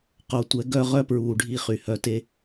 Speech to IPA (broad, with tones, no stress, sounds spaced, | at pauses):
q o˨ tʷ ɛ˨˦ ɡ œ˧ ʁ œ˦ p ɹ uː˨ ɖʱ i˧ χ y˨ h œ˧ t e˦